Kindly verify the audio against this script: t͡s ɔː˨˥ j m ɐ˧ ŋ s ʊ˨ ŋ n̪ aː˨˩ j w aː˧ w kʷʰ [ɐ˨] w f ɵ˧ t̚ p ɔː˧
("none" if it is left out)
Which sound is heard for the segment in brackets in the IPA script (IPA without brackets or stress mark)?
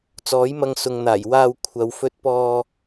ɐ˨